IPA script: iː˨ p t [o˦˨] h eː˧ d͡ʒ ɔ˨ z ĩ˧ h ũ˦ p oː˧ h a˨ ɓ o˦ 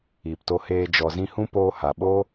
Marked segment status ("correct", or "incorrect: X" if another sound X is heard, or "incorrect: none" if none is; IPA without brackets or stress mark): incorrect: o˧